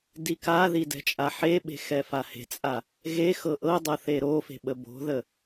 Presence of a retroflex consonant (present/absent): absent